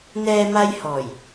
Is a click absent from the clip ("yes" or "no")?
yes